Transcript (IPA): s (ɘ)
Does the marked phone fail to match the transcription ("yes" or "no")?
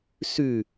yes